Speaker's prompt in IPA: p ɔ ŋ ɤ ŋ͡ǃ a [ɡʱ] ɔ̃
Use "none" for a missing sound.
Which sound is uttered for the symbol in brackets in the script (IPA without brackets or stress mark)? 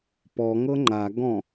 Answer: ɡ